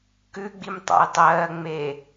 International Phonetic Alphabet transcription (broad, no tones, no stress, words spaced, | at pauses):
kʉɡ͡bim tˤa̰jtˤɜː ŋ͡me